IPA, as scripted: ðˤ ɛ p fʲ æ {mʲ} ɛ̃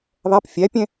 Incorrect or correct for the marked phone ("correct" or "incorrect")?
incorrect